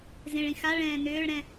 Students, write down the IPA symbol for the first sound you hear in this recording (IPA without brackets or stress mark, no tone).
z